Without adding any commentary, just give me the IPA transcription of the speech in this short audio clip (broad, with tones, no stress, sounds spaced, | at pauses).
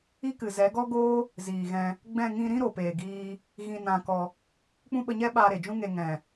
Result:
i˦ k ɨ˨ z ɛ˨˦ ɡ ɔ˦ ɡ oː˦ | z iː˨ ɣ ɛ̃˧ | ɡ͡b ɛ̃˦˨ ŋ ĩ˧ ɾ ĩ˦ ɾ o˨ p eː˨ ɡ iː˧ | ɣ ĩ˧ n ã˧ k ɔ˧ | k͡p ũ˦ ɓ ə˧ ɲ ɛ˦ ɓ aː˧ ɾ e˨ d͡ʒ ũ˦ ŋ e˧ ŋ ɛ̃˨